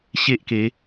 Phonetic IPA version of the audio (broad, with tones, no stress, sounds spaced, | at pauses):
ɕ e˦ ʔ k e˨˦